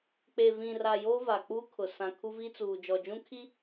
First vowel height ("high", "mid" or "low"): mid